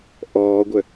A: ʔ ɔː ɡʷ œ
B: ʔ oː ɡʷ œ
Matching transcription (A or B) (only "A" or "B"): A